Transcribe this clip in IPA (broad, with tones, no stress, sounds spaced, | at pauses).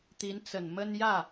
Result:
t̪ i˧˥ n t͡s ə˨˩ n m ə˥ n j ä˥˩